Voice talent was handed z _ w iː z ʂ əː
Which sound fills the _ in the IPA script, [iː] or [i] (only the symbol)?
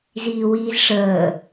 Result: iː